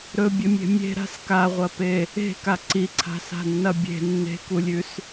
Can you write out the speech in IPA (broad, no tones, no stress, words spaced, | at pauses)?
ɾɵbʲɵmʲe̤ mʲe̤ɾa̤s kaʁʷɐpe | e̤ka ǀiǀʰa̤sa̤nːɐ bʲe̤ nːe̤kulʲʉs